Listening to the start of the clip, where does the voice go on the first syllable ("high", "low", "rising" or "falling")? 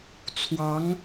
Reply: rising